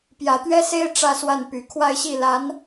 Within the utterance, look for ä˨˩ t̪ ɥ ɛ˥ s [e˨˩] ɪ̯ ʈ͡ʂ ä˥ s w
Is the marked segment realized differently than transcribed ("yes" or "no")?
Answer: yes